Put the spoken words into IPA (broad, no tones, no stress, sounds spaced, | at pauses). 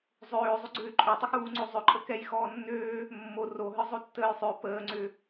zˤ øː zˤ ʏ ɡ͡ǀ ʏː ǃʼ ø tˤ ʏ x uː ŋ͡ǀ o zˤ ʏ ǃʼ ə k ɛ j x ɔː nː øː | mː o r o ɦ ə˞ zˤ o tː əː j sˤ ø p əː ŋ͡ǀ ʏ